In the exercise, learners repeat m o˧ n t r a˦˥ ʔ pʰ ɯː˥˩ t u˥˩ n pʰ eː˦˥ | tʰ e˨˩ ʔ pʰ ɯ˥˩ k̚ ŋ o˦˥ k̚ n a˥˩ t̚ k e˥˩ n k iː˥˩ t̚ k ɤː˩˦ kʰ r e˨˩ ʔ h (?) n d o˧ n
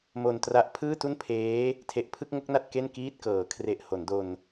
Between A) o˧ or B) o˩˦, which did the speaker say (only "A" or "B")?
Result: B